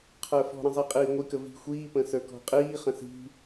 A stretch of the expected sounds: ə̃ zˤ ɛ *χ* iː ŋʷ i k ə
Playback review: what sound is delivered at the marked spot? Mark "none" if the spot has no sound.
qʼ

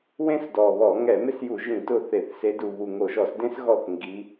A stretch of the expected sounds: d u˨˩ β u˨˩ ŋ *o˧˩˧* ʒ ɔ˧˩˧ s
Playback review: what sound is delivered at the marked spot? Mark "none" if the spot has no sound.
o˧˩˧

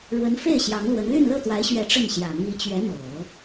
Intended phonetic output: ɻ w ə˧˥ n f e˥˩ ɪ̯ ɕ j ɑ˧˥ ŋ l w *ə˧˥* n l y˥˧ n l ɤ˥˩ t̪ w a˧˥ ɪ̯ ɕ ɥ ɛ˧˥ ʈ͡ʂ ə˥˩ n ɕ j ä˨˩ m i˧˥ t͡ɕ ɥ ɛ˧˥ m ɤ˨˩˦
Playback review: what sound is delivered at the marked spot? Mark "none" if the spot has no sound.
ə˧˥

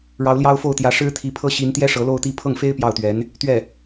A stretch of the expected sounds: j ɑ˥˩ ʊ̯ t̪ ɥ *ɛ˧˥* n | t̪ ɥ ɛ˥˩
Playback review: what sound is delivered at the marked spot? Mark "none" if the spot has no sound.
ɛ˧˥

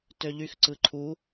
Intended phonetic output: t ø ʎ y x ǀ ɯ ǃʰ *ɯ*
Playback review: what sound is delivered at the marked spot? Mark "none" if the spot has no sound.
u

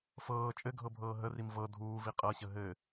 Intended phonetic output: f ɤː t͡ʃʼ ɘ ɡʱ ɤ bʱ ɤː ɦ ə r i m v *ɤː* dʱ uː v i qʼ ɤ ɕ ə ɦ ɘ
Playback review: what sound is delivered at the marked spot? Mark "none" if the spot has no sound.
ɤ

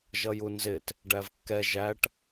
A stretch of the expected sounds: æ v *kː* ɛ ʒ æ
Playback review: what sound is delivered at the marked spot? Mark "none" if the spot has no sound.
kː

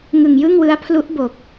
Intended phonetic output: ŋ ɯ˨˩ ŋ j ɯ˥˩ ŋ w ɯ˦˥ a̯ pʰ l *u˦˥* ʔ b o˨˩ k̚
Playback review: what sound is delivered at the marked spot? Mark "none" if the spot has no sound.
u˦˥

